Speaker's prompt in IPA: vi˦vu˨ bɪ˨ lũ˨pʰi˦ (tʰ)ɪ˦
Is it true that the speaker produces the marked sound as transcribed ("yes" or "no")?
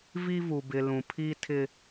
yes